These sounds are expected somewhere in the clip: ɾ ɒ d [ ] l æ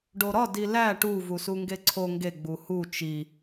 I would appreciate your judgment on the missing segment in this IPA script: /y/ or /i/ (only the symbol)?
i